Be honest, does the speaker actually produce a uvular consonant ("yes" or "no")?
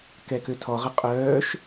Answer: yes